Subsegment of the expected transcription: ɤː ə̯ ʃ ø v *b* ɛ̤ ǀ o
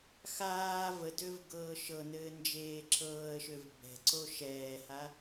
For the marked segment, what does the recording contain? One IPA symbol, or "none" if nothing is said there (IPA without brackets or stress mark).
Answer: b